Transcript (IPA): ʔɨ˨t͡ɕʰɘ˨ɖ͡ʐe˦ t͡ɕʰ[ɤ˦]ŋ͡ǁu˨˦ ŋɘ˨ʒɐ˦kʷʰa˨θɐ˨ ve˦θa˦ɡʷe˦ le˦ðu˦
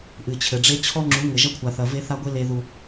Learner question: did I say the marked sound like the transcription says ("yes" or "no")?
no